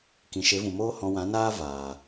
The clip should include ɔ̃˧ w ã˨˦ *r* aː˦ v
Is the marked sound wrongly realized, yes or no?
yes